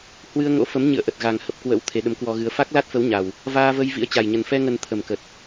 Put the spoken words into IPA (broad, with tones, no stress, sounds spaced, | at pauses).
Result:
h w ɨ˧ ə̯ ŋ o̰˧˥ f ə˨˦ m ɲ ɨ̰˧˨ ə̯ ʔ ə˨˩ t̚ ɣ a˨˩ ŋ h ə˨˩ p̚ k w ə̰˧˥ w t̪ʰ e˨˦ ɗ ə˨˦ m k w ɔ˧ ɣ ɨ˧ ə̯ f a˦˥ k̚ l a˦˥ t̚ f ə˨˦ w ɲ a˨˩ w | v aː˧ v ə˧ j v ḭ˧˥ ə̯ t͡ɕ a˨˩ j ɲ ə˨˩ n f ɛ˧ ŋ ə˨˩ n t̪ʰ ə˨˩ m k ə˨˩ t̚